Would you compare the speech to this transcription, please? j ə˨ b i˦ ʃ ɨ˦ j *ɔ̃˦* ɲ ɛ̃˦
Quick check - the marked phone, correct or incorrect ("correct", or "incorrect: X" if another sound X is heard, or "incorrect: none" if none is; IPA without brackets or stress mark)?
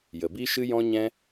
correct